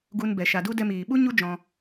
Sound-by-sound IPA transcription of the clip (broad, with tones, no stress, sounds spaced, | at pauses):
ɡ u˧ n b ɛ˨ ʃ a˨ d u˧ d ɛ˧ m iː˨ ɓ u˦ ɲ u˦ d͡ʒ ɔ̃˧